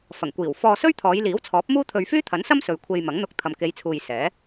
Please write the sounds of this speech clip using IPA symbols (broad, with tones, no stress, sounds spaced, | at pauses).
f ɐ˨˩ ŋ kʷ iː˨˩ w f ɔː˧ s ɵ˥ ɥ t̪ʰ ɔː˨˧ j l iː˨˥ w t͡sʰ ɔː˨˥ p̚ m uː˥ t̪ʰ ɵ˧ ɥ f yː˥ t̪ʰ ɐ˨˥ n s ɐ˥ m s ɵ˨ ɥ kʷʰ e˧ j m ɐ˨˥ ŋ n̪ ʊ˧ k̚ t̪ʰ ɐ˨ m k e˨˧ j t͡sʰ uː˨ j s ɛː˨˥